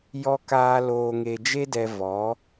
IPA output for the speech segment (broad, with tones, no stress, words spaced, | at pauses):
jɔ˧kaː˧ loː˧ŋe˧d͡ʒe˦dɛ˧ vɔ˨˦